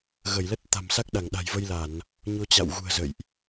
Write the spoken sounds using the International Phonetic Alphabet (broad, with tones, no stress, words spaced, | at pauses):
ɣə˧˩jlə˦˥t̚ t̪a̤˨˩msa˦˥k̚ɗa˧˩ŋ ɗa̤˨˩jvə˧jla˧˩˨n | ɲo˧t͡ɕa̰˧˨wɣṳ˨˩ə̯ zə̰˧˨jʔ